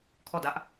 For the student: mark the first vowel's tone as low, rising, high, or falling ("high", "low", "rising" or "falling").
falling